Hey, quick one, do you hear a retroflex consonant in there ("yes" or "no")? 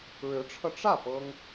yes